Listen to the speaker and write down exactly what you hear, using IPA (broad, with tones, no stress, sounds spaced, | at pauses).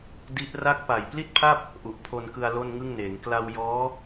d i˦˥ ʔ r a˦˥ k̚ p a˨˩ j p l i˥˩ t̚ pʰ a˥˩ p̚ | ʔ u˨˩ ʔ pʰ o˧ n k ɯ˧ a̯ l o˥˩ n ŋ ɯ˥˩ ŋ n eː˩˦ ŋ k l a˧ w j ɔː˦˥